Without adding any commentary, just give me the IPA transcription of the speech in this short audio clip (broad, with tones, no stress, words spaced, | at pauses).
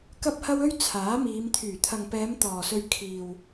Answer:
kɐ˥p̚hɐ˥w ɵ˥ɥ t͡sʰaː˨˥miː˨˧m t̪ʰyː˨˩t̪ʰɐ˨ŋpɛː˨˧m t̪ɔː˨sɵ˧ɥ kʰiː˨w